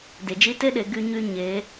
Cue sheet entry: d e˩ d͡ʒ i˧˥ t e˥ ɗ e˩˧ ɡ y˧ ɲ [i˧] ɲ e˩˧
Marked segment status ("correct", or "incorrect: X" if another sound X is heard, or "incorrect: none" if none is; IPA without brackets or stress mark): incorrect: y˧